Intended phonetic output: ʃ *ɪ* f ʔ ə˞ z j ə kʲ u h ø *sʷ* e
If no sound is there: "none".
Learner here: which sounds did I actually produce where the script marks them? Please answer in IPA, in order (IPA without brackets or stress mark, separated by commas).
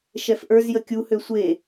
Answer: ɛ, sʷ